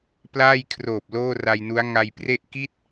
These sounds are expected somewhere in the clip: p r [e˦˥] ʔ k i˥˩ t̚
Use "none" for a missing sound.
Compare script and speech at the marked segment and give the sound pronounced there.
e˥˩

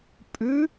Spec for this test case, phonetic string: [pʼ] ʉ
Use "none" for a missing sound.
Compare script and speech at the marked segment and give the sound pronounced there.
pʼ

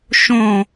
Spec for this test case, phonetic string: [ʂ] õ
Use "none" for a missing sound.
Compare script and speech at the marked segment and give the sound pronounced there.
ʃ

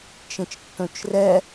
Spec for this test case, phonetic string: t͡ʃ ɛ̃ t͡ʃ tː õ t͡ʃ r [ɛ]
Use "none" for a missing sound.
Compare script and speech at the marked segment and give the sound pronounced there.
ɛ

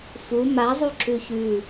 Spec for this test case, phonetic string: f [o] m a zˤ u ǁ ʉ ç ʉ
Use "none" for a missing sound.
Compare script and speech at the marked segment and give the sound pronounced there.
u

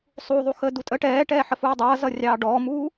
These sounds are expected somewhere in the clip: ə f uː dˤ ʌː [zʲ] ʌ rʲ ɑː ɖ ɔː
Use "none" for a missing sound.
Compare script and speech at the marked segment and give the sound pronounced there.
z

